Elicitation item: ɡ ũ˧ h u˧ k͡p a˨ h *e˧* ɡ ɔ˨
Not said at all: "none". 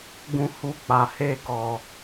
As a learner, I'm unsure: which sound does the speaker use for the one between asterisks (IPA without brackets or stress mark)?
e˧